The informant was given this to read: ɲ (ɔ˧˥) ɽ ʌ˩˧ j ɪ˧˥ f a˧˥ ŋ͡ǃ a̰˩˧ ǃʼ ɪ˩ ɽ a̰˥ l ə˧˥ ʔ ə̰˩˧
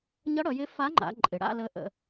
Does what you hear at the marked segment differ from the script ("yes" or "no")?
yes